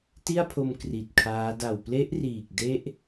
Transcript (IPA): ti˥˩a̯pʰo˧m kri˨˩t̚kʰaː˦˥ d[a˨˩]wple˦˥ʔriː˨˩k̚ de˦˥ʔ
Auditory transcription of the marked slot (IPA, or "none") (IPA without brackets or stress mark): a˨˩